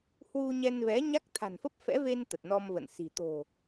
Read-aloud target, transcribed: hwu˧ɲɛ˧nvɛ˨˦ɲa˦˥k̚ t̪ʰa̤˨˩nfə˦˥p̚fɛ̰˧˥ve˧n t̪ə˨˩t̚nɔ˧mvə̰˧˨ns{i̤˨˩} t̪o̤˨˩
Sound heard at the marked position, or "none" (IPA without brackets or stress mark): i̤˨˩